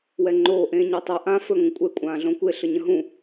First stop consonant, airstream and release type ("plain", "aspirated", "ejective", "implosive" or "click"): click